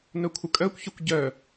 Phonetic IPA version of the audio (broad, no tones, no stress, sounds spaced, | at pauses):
n œ kʷʰ ə kʼ œ kʷ ç œ kʷ ɟ œ